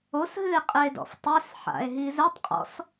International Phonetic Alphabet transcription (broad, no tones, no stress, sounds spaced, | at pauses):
o s ɦ ɨ e̯ qʼ ɛ e̯ d ɔ̰ f tˤ e s ħ a̰ e̯ ɦ i z ɘ tˤ qʼ ɔ̰ s